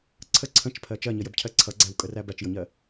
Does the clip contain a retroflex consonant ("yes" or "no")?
no